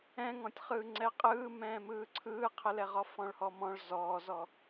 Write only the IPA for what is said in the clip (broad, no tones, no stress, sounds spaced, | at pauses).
ɛ̃ ŋ ɔ̃ tʲ χ ɯː ŋ͡ǀ ɛ qʼ ɯː m ɛ̃ː m ɯː ǀʰ ɯː qʰ ə l ɛ ʁ ɔ f ɔ̃ ɭ h ɔ m ɔ̃ ɭ z ɔː z ɔ